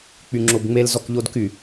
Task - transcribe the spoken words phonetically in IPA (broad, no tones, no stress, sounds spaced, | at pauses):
k͡p y ŋ͡ǁ o b ŋ͡m e l z ɔ k ʎ o d k y